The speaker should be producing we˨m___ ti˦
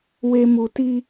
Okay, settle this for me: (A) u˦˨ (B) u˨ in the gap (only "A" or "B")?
B